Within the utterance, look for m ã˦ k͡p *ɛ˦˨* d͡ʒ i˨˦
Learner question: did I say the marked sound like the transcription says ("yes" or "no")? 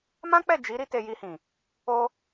yes